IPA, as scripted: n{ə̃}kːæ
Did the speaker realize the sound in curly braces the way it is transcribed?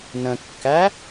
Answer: yes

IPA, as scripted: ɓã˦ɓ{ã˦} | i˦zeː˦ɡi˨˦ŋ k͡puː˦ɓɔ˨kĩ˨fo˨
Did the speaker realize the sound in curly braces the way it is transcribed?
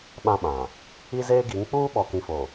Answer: no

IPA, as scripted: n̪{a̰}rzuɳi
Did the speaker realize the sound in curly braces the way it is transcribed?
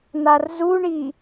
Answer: no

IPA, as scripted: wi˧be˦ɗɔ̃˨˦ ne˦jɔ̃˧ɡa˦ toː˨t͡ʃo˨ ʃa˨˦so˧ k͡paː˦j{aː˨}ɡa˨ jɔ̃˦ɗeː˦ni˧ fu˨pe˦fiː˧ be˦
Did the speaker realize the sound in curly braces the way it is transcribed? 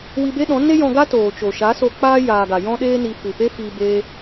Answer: yes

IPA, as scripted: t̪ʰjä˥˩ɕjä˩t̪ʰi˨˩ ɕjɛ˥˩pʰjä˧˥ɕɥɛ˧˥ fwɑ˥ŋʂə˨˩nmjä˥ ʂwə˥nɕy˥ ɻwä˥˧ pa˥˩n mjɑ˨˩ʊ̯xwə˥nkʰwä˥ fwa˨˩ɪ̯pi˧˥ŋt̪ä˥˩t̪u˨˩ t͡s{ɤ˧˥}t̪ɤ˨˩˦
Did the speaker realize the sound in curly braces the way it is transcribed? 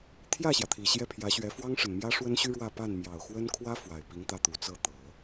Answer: no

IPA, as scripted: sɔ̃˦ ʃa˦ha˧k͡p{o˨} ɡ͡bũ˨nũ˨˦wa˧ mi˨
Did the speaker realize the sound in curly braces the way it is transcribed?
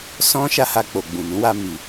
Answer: yes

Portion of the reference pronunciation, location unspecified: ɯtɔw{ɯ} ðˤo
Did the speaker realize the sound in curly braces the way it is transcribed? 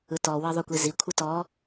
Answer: no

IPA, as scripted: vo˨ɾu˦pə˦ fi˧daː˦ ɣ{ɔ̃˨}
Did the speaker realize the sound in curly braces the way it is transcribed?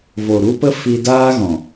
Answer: yes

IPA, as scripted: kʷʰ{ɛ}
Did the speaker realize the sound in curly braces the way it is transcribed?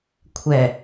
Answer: yes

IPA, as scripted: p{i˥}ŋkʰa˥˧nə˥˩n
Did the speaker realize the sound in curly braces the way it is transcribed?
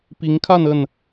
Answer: no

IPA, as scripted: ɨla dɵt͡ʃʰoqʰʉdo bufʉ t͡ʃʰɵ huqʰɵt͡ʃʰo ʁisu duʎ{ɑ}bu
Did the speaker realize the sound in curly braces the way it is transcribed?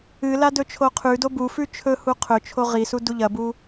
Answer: no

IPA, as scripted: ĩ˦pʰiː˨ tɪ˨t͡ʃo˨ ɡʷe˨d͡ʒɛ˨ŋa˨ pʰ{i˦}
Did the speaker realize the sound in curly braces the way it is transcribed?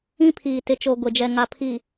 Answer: no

